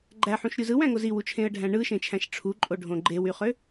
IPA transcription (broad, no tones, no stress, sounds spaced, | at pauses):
ɡ͡ǃ æ ħ ũ ʃ ɾʲ u z ɯ w æ̃ ŋ o z i w u t͡ʃʰ ẽ ə̯ ɖʱ æ̃ ɳ ɯ ʃ ẽ t͡ʃʰ æ̃ ʃ ʈ͡ʂʰ u ǃʼ o ɖʱ õ ɡ͡ǃ e w y χ ø